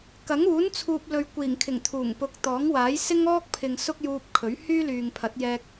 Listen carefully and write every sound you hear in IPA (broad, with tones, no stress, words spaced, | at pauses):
kɐ˨˥ŋuː˨˥nt͡sʰuː˨p̚ lɵ˨ɥkʷiː˨˩ŋkʰɪ˨˩ŋ t̪ʰuː˨˩ŋpʊ˨˥k̚ t̪ɔː˨˥ŋwaː˨˥j sɪ˥ŋɔː˥k̚pʰɪ˨ŋ sʊ˥k̚juː˧p̚kʰɵ˨˥ɥ hyː˥lyː˨ŋpʰɐ˨˥t̚ jɛː˧k̚